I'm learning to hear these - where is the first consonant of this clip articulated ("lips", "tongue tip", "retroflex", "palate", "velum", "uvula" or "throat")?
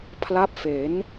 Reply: lips